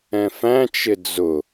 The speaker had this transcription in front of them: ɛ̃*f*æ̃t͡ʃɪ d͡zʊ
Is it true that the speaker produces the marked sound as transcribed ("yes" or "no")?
yes